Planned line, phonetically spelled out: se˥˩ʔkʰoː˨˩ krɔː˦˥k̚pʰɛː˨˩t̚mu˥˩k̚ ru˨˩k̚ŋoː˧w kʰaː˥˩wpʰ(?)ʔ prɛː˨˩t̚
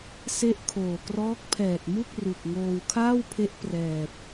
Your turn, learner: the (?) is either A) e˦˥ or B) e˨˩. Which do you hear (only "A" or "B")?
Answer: A